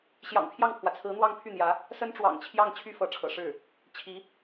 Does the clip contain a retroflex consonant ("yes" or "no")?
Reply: yes